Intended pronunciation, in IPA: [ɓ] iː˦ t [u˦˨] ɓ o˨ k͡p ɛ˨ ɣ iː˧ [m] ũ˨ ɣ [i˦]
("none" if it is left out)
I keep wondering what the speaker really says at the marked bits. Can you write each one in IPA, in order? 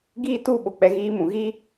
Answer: ɡ, u˦˨, m, i˦

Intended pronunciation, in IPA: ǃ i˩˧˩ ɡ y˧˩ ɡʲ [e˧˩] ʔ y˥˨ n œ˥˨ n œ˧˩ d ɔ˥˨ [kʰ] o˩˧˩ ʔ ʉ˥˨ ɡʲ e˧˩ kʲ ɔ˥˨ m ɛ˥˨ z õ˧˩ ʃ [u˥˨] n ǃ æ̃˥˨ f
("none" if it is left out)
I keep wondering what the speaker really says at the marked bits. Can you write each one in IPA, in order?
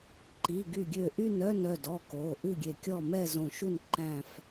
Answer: ø˧˩, k, u˥˨

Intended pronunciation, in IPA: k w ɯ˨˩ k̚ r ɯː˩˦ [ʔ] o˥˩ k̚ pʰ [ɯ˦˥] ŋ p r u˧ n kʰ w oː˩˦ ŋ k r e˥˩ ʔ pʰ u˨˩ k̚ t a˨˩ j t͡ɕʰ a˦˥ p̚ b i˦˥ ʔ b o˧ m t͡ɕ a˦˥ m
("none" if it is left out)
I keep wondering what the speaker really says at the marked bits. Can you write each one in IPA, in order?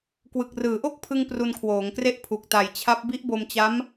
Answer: ʔ, ɯ˧

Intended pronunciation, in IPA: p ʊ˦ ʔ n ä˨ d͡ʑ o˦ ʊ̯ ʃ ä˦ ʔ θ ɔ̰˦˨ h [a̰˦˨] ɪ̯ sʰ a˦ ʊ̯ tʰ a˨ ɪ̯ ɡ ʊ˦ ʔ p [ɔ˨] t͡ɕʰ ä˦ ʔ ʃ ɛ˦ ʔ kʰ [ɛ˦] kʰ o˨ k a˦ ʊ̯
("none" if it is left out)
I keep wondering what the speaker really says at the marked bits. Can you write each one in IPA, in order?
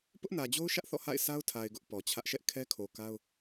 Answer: a̰˦˨, ɔ˨, ɛ˦

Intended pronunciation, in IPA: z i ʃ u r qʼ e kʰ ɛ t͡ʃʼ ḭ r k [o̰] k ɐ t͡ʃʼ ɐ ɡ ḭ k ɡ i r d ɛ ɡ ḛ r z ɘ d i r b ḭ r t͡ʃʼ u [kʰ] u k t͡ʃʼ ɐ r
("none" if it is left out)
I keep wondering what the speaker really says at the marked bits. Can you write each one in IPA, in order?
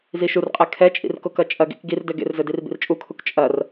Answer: o, kʰ

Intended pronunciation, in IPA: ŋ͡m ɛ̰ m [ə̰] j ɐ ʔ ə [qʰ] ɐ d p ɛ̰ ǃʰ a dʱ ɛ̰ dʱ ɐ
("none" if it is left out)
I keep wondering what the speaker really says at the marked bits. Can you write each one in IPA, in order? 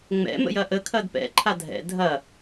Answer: ə̰, kʰ

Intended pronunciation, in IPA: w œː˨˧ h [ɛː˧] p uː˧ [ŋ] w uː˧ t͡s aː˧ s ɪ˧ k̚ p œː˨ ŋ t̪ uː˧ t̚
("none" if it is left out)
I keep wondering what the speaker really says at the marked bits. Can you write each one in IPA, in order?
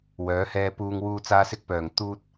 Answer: ɛː˧, ŋ

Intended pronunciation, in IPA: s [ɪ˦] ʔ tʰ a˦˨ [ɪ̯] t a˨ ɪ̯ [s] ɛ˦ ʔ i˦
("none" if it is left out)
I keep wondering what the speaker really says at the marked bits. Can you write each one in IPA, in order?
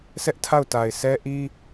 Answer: ɛ˦, ʊ̯, s

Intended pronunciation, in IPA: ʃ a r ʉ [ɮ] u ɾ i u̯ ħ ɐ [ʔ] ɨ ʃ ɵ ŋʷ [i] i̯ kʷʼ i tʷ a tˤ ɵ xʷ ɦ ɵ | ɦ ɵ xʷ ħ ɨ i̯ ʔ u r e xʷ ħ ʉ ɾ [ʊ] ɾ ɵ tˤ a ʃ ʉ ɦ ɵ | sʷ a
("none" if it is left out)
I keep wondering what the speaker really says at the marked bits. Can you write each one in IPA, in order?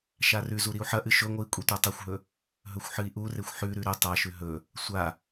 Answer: z, ʔ, ɨ, ʉ

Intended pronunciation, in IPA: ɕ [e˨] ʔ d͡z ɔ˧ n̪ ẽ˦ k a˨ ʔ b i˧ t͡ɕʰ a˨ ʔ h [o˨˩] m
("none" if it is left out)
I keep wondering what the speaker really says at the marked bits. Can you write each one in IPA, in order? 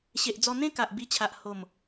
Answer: e˨, o˨˩

